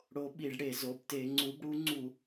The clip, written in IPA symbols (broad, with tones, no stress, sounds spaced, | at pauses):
ɽ o˨˦ ɓ i˧˩˧ ɖ ɽ e˧˩˧ z o˩˧˩ b t e˧˩˧ ŋ͡ǀ u˨˦ b ɽ u˨˦ ŋ͡ǀ u˧˩˧